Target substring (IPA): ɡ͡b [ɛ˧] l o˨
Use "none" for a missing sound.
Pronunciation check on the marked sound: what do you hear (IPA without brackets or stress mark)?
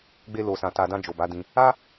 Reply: e˧